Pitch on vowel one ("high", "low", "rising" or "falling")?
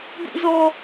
high